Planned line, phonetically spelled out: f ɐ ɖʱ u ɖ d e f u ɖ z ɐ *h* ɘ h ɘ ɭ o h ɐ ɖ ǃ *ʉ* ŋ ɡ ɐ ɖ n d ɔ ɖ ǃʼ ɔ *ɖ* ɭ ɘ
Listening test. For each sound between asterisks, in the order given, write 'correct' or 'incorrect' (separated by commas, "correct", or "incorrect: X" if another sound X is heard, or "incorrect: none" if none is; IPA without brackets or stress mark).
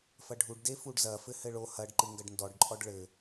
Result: incorrect: f, incorrect: ɨ, correct